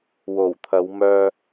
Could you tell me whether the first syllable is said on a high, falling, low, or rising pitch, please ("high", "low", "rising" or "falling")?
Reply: low